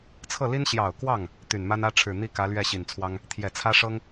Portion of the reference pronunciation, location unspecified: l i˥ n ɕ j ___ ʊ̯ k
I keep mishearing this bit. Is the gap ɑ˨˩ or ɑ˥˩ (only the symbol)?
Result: ɑ˨˩